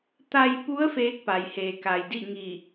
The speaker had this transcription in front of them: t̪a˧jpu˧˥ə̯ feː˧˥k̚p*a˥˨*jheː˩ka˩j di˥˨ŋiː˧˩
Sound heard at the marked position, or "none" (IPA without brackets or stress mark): a˩